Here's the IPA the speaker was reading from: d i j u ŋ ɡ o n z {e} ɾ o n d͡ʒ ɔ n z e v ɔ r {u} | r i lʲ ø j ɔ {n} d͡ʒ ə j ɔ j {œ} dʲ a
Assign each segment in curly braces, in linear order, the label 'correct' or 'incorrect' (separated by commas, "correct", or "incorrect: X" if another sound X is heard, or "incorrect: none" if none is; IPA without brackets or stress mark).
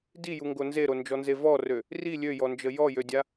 correct, incorrect: ø, correct, incorrect: ø